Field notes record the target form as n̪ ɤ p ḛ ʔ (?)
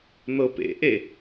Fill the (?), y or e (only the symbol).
e